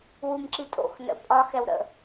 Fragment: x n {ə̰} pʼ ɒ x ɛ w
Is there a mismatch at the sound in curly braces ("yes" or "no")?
no